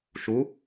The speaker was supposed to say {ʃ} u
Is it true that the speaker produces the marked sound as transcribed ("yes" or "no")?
yes